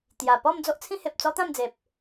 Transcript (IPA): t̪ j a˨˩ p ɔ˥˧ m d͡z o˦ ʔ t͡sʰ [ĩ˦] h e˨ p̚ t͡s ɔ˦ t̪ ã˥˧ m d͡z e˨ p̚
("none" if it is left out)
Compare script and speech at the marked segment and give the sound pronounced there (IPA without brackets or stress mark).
ĩ˦